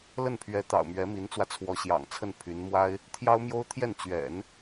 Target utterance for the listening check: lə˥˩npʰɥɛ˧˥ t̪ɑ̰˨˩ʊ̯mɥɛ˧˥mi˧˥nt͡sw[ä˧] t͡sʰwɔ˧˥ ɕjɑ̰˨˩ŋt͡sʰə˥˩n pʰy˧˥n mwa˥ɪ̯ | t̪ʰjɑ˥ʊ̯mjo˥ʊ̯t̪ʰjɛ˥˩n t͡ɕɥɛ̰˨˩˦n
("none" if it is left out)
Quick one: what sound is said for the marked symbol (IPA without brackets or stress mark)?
ä˧